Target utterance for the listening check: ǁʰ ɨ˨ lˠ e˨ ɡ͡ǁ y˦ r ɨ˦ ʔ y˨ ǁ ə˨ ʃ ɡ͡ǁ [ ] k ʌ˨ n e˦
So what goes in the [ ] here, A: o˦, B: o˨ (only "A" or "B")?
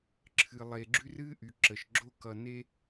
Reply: A